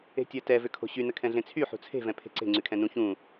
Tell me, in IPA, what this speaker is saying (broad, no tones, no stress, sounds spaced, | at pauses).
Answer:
e̤ tʲ ɜ t ɛ v ʏ kʰ o̤ ɕ y n ə kʰ ɛ̃ ɮ ẽ t͡sʰ y ħ ṳ t͡sʰ e̤ v ɛ̃ pʰ e̤ ǀ e̤ ŋ͡ǀ y kʰ ɛ̃ n ũ ç ũ